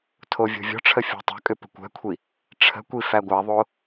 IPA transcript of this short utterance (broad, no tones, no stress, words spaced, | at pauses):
tʰovʲo̤vʲɔ̤ʈ͡ʂʰə fʲɔ̤tˤə̤kʼʏ pə̤kʷɛ̤kʷʰi | ʈ͡ʂʰə̤kʷi fæɡʷæðˤo